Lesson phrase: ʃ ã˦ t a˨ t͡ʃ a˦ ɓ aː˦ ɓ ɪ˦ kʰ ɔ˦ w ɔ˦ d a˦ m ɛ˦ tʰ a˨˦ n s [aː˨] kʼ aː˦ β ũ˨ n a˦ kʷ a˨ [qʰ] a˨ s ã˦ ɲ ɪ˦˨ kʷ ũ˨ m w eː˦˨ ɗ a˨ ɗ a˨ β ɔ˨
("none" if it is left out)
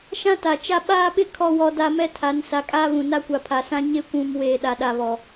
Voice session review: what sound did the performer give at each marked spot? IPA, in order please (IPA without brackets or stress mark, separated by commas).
a˨, pʰ